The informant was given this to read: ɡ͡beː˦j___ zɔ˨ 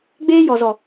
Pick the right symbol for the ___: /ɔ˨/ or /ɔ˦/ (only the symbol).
ɔ˨